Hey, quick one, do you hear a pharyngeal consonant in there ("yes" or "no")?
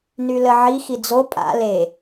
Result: yes